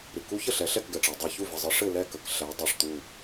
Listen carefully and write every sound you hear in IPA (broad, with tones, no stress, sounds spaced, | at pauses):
ɾ ɨ˩ k u˦˥ ç ə˥˩ ɬ ɛ˩˧ ɬ ɛ˥˩ k ɡ ɛ˩ ʈ͡ʂ ɜ˩ dˤ ɛ˧˩ ç u˥˩ v ə˩ zˤ ɨ˩˧ ʂ ɘ˥˩ l ɛ˥˩ k ə˩ k ɬ ɛ˩˧ dˤ ɨ˩ ʂ t̪ u˧˩